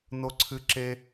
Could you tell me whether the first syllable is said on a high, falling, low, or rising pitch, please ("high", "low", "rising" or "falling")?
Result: high